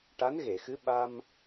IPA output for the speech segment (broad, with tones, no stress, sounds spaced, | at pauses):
ʈ a˧˥ n ɣ e˨˩˨ x ɨ˧˥ ɓ a˧ m